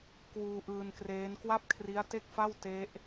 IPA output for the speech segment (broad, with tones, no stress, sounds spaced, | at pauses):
k w uː˧ ʔ ɯː˧ n k r eː˦˥ n k w a˥˩ p̚ kʰ r i˦˥ a̯ t e˥˩ k̚ f a˥˩ w t e˦˥ ʔ